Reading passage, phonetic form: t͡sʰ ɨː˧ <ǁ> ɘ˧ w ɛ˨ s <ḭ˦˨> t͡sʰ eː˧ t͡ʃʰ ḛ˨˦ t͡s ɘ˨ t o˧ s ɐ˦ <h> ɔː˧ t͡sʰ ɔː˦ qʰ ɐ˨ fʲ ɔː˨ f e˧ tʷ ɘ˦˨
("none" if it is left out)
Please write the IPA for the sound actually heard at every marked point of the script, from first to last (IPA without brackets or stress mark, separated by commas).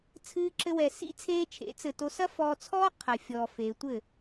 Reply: ǁ, ḭ˦, f